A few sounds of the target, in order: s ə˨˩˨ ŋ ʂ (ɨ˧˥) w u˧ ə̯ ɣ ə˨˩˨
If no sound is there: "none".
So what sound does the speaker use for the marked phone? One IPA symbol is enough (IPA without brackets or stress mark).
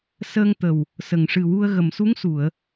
ɨ˨˩